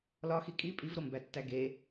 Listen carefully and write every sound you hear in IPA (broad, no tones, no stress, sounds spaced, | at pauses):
l ɒ x i kʼ i pʼ i v ɾ o m b æ tː æ ɡ e